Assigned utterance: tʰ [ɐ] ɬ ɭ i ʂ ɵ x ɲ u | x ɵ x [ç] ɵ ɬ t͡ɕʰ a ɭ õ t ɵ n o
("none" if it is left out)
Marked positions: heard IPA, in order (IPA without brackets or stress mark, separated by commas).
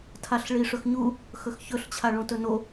a, ç